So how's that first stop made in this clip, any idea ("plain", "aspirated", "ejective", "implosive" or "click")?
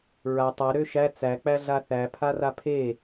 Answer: plain